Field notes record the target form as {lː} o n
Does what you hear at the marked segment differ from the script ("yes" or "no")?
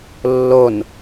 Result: no